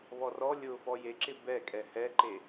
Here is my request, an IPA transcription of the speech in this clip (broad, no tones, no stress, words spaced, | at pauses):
βɔrɔ lʲʊ fɔjeǁɪ bɛ kʼɛhɛǃe